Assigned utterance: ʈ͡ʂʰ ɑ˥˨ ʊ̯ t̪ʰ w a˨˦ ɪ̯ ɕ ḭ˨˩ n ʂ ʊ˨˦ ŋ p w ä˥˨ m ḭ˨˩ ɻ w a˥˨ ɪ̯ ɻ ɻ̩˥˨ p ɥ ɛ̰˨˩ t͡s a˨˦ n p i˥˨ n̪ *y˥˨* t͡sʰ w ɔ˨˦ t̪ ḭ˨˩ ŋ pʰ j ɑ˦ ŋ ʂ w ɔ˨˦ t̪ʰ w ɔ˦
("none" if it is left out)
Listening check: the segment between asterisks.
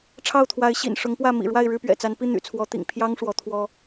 y̰˨˩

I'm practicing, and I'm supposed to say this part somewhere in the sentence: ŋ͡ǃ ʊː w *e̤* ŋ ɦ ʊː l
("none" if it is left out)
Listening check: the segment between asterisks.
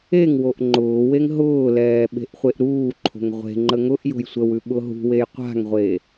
e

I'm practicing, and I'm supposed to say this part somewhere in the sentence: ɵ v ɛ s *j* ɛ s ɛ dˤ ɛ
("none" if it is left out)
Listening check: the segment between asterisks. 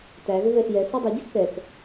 j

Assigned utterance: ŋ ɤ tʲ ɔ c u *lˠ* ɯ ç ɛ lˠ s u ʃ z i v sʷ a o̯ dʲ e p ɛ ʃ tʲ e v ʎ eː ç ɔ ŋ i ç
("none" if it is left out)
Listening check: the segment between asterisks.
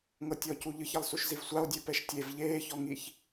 ʎ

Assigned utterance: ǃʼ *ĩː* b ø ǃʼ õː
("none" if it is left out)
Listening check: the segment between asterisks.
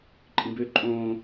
ĩ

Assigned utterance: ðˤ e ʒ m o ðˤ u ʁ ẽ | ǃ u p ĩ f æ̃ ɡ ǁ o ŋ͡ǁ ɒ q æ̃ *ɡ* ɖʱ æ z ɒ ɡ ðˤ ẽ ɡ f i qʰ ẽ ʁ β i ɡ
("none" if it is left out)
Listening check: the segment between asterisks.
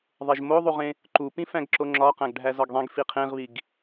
ɡ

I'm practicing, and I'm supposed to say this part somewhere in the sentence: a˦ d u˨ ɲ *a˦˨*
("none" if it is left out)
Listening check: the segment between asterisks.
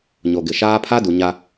a˦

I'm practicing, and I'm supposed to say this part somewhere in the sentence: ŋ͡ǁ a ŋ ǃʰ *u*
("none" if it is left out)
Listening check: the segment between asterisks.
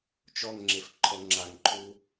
u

